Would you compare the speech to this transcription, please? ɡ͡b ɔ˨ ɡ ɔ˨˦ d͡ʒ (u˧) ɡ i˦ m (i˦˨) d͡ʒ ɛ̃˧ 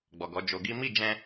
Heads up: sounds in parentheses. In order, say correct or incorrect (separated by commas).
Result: incorrect, correct